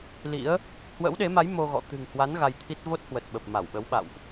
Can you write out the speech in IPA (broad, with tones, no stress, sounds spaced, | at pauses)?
l ḭ˧˥ ə̯ | h w ə̰˧˥ w ɗ e˨˦ m a˨˦ j m o˧ ɣ ɔ̰˧˨ t̪ ɨ̤˨˩ ŋ h w a˨˦ n ɣ a˧ j t̪ʰ i˦˥ t̚ v o˦˥ t̚ h w ə˨˩ t̚ ɓ ə˨˩ p̚ m a˧˩ w ɓ ə˨˦ w ɓ a̰˧˨ w ʔ